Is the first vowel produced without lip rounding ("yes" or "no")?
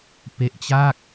yes